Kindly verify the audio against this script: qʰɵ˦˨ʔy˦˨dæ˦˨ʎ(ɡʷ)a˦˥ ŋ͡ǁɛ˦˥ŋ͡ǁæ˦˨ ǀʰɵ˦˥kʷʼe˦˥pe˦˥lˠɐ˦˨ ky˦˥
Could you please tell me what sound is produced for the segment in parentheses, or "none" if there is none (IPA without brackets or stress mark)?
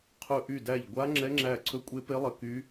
ɡʷ